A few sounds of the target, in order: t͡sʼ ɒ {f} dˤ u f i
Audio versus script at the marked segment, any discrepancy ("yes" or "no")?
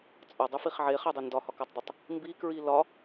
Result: yes